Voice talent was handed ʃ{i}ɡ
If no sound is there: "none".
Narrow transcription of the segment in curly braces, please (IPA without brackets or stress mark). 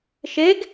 e